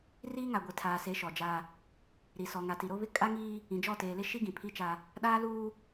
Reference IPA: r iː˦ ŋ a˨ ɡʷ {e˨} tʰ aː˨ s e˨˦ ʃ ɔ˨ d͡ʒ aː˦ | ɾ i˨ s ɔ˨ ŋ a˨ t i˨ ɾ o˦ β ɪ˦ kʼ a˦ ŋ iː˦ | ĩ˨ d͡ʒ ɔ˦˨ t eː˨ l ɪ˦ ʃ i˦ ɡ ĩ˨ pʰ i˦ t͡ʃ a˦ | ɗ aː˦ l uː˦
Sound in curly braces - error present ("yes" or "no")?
no